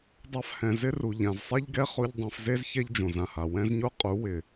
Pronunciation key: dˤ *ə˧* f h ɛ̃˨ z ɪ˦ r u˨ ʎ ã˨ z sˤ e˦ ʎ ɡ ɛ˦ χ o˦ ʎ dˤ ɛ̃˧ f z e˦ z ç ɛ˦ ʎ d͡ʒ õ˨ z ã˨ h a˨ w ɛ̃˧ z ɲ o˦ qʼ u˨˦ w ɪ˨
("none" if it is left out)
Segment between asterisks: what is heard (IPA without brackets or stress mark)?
a˧